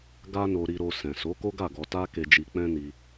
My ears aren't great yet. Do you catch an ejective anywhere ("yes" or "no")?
no